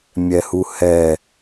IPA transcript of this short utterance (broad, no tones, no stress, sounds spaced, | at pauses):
mʲ ɛ h u h ɛ